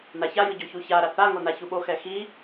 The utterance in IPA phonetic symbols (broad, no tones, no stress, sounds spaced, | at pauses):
n a ç a j ɯ ɟ o ç u ç a ɾ a θ a ŋ o n a ç u ɓ o x ɛ x i